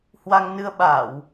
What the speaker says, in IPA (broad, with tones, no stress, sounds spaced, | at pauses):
h w a˧ ŋ n ɨ˧ ə̯ ɓ a˧˩˨ w